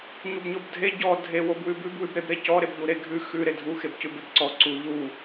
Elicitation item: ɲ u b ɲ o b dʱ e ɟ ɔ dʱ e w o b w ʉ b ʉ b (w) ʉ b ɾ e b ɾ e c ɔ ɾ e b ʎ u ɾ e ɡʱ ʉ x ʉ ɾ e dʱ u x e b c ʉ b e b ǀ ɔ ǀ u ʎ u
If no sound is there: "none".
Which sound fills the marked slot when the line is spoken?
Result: w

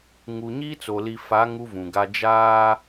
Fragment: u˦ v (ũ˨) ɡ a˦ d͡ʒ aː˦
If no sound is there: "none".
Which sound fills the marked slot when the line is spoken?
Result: ũ˨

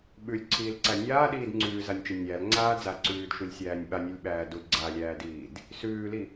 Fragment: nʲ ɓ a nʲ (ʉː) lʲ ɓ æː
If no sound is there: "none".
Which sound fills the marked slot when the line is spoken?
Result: ʉ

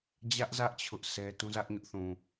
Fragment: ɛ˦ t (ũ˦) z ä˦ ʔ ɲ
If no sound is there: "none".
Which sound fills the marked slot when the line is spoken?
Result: ũ˦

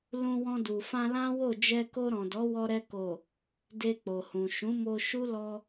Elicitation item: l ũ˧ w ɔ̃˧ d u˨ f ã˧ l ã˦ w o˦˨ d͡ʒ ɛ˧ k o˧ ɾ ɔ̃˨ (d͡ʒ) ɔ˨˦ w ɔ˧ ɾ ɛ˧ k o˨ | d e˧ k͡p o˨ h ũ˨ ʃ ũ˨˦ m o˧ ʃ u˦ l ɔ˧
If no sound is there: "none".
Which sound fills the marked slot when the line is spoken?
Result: d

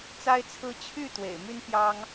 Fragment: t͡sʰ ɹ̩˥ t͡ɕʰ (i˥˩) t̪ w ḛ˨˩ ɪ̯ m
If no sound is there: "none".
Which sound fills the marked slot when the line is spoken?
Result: y˥˩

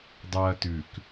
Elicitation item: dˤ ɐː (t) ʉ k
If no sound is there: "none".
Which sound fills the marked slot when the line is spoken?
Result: t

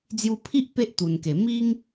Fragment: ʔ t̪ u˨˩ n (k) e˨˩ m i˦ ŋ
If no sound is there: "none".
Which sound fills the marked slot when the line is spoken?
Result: k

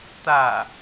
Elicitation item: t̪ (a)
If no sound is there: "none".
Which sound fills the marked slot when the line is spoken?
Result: a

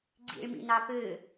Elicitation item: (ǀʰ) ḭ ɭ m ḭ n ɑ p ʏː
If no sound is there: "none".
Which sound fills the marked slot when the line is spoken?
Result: ɡ͡ǀ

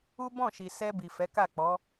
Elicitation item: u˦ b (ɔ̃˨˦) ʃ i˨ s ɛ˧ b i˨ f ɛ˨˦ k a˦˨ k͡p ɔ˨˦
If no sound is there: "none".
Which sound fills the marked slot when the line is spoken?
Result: ɔ̃˦˨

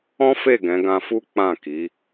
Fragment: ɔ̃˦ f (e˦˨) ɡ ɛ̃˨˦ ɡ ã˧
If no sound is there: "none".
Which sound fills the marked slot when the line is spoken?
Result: e˦˨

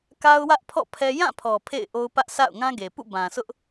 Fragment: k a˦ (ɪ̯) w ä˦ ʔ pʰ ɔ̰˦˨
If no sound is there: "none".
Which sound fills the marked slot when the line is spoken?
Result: ʊ̯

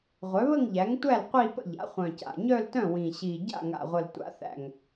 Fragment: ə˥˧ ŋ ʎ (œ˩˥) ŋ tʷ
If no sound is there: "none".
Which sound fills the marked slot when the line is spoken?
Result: æ˩˥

